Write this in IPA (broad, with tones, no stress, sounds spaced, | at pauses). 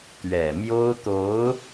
t̪ ɥ ɛ˨˩ m j o˥ ʊ̯ t̪ o˧˥ ʊ̯